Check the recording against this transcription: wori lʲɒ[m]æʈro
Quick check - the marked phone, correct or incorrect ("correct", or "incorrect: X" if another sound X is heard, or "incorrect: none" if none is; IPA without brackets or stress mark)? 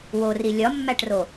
incorrect: mː